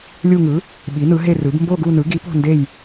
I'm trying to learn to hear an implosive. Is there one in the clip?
yes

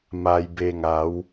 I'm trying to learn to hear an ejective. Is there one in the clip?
no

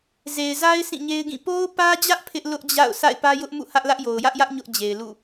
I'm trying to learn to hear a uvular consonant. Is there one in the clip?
no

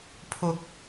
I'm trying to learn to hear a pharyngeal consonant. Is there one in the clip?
no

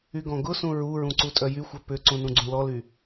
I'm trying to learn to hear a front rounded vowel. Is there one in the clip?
yes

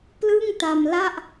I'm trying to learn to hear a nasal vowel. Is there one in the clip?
no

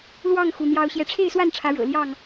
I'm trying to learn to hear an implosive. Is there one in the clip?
no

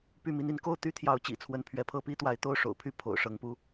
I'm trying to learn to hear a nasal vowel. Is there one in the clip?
no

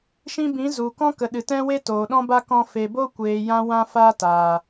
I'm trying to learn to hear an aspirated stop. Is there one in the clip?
no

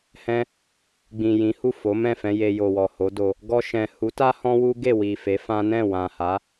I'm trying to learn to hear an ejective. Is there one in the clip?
no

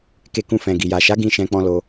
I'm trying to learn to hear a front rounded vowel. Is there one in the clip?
no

